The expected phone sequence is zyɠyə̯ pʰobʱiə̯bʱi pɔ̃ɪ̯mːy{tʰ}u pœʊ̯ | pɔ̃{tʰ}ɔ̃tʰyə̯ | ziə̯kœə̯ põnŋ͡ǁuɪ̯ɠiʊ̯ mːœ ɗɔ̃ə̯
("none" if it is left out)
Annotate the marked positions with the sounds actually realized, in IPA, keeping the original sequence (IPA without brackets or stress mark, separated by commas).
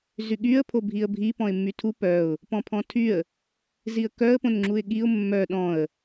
tʰ, pʰ